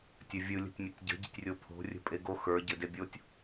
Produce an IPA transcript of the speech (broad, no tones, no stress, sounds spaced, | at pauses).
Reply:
tʲ ɘ vʲ ɯ lʲ ə̤ tʲ mʲ ɘ tʲ ɟ ə̤ ɟ ə̤ tʲ rʲ o pʰ o̤ rʲ ə̤ pʼ e ɡ o x ə˞ ɟ ɘ d e bʲ o tʲ